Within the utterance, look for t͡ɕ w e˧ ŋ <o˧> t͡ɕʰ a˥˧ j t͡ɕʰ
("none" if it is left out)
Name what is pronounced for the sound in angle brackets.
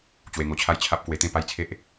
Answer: o˧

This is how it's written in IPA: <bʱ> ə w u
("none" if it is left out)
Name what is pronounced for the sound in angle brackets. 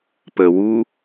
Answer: p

